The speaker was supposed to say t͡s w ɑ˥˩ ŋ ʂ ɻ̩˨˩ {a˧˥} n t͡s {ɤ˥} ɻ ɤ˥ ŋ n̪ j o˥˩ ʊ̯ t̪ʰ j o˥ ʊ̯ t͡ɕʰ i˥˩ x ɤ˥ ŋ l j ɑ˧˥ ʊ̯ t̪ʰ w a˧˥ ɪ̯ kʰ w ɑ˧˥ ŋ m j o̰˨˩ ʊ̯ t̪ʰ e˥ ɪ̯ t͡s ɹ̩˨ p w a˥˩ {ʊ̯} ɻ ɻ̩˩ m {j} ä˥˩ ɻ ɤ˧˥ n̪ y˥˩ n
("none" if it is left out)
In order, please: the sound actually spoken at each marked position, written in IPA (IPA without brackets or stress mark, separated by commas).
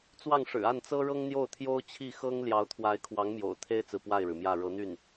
a˥˩, ɤ˥, ɪ̯, j